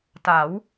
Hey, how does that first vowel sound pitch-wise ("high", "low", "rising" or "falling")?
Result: rising